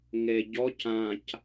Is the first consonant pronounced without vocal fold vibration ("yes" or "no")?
no